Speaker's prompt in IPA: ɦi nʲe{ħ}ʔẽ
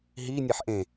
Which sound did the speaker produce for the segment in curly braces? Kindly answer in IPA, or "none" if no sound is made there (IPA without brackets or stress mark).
ħ